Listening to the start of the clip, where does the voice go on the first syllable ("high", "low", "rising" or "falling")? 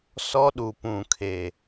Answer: high